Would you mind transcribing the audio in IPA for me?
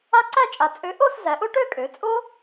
a˦˥ ǀ æ˥˧ t͡ʃʼ a˨˩ t͡sʼ ø˨˥ ʔ o˥˧ s z æ˩˧ ʔ o˦˥ ʈ ø˥˧ kʼ ø˩˧ t͡sʼ o˦˥

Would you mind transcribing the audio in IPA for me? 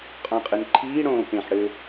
qʼ ɔ̃ qʼ ɨ n ǃʰ iː ɽ õː p ẽ ħ ɽ ɘ

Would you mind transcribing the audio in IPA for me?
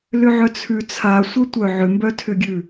l ʏ ʕ œ t͡sʰ ʉ t͡sʰ a sʷ œ tʷ œ ʕ ʏ m b œ tʰ ʏ ɡʲ ʉ

